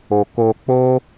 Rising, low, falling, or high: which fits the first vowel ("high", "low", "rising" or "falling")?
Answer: low